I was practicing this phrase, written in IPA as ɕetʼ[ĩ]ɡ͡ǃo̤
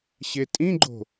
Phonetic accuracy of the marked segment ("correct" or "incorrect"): correct